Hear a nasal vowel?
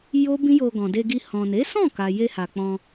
yes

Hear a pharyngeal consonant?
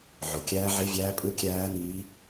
yes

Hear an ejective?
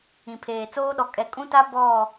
yes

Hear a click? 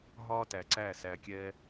yes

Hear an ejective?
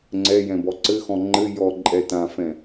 yes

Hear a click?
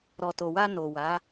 no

